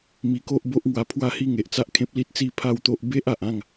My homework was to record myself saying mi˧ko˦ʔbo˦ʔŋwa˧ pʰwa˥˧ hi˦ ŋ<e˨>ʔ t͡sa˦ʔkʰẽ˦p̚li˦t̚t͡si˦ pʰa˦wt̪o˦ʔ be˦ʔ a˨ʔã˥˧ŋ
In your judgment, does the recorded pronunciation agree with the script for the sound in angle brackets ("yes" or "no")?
yes